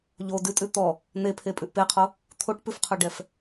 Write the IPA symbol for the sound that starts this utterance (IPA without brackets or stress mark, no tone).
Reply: ʎ